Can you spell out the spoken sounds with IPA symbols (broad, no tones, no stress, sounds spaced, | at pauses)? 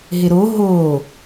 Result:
ɦ ɪ ɾ o ɦ o